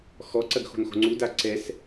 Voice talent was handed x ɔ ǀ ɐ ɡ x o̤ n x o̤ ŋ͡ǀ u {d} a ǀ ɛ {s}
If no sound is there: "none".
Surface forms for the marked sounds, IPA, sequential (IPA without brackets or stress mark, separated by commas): d, s